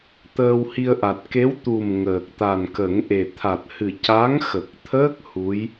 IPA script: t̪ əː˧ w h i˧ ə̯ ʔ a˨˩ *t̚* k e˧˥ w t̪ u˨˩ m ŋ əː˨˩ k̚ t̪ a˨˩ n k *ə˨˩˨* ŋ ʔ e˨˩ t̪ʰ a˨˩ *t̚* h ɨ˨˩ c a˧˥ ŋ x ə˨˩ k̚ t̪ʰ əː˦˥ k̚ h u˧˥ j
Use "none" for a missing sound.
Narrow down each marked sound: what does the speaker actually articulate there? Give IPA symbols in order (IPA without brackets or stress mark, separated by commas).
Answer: t̚, ə˨˩˦, t̚